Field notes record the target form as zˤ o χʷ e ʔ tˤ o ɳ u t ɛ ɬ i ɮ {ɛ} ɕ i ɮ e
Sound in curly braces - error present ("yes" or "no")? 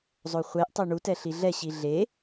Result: no